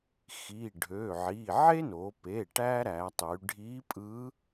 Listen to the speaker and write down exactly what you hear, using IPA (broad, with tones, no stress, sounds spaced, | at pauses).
x i˩˧˩ ɖʱ ø˩˧˩ ʕ i˩˧˩ ʕ e˥ n o˩˧ p e˩˧˩ ʈ æ˥ ɾ æ˩˧ tˤ y˩˧ ɖʱ i˧˥ pʼ ɯ˧˥